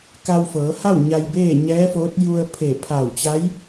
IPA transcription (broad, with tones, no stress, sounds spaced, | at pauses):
k a˧ w f ɤː˩˧ h a˥˨ w ɲ a˧ j b eː˥˨ ɲ ɛː˧˥ f oː˧˥ t̚ j u˧ ə̯ pʰ e˧˩ pʰ a˧˩ w t͡ɕ a˧˥ j